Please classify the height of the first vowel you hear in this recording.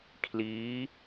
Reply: high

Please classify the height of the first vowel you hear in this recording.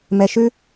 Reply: mid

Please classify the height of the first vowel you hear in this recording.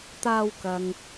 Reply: low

